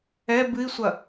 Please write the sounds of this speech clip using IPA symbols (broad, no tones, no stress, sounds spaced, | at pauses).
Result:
ɛ b ɨ i̯ sʷ ɐ